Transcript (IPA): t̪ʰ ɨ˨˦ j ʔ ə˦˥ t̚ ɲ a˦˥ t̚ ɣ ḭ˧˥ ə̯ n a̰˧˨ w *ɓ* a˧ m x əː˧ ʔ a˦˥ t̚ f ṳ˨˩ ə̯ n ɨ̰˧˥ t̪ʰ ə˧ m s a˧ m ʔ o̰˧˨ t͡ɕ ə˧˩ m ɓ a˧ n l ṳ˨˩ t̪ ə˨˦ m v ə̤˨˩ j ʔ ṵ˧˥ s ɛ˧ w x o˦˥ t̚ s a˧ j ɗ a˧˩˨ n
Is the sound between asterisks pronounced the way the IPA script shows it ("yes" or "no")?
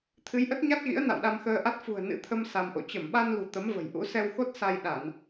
no